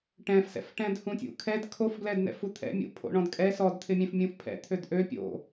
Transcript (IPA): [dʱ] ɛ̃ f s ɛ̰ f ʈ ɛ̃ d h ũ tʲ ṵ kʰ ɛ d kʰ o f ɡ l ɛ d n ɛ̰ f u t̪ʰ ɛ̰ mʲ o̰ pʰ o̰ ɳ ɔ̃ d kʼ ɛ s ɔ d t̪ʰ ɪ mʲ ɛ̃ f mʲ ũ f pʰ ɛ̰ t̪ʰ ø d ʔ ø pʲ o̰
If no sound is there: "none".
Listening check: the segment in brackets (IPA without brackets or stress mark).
ʈ